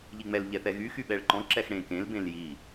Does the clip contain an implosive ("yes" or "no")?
yes